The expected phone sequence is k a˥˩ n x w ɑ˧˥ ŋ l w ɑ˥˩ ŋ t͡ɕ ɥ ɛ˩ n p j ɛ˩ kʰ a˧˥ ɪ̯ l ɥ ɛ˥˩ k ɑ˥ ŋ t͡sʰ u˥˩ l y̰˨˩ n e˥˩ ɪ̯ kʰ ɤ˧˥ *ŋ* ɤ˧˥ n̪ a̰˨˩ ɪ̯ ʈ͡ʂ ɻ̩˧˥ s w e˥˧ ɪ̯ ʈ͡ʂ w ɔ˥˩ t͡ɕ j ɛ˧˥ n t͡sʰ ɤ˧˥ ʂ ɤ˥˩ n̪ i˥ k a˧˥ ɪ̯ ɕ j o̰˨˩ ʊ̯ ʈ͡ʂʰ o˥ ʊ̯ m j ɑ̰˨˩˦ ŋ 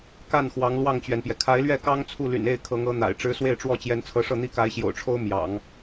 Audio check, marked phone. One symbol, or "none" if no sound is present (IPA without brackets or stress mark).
ŋ